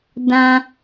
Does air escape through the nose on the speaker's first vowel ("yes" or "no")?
yes